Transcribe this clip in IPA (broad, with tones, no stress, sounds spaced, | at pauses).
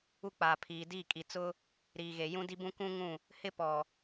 u˦ k͡p aː˨ pʰ iː˨ d iː˦˨ kʼ i˨ t͡s ʊ˦ | ɾ iː˨ ɣ e˨ j ũ˦ d i˦ b ũ˦ k ũ˦ ŋ ũ˦˨ | h ɪ˦ p ɔ˨